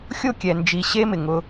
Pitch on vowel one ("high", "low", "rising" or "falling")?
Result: falling